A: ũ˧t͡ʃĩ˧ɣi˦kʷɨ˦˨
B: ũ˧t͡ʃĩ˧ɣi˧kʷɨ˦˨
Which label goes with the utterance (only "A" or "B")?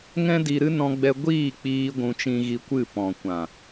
B